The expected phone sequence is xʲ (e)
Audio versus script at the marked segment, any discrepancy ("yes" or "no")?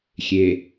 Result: no